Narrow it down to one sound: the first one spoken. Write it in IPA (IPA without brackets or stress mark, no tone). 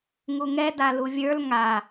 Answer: ŋ